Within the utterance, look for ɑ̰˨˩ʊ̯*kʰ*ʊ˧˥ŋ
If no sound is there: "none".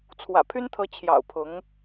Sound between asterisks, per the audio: pʰ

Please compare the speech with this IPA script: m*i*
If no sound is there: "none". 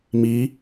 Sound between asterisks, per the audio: i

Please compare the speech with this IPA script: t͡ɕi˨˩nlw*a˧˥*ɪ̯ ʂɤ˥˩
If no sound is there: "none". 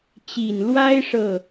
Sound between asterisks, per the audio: a˥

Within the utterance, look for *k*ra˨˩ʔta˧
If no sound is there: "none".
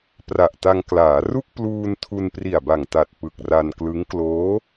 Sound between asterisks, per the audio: p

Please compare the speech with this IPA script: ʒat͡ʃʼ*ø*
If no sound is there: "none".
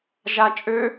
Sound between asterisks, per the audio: ø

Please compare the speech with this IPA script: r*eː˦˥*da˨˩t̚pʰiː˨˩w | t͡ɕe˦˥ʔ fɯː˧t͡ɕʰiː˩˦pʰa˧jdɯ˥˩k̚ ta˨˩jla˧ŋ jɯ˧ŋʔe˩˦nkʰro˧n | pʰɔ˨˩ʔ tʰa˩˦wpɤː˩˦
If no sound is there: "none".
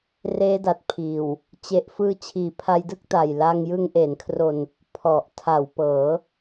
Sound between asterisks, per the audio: eː˦˥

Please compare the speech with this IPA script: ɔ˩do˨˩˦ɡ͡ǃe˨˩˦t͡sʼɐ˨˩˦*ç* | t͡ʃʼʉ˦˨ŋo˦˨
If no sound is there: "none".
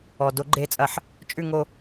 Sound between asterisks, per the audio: ħ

